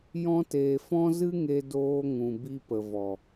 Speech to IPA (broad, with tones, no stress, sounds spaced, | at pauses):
j ɔ̃˧ t eː˨ f ɔ̃˦ z ɨ˦ ŋ e˧ d oː˧ ŋ ũ˨ b i˧ p ə˨ v ɔ˨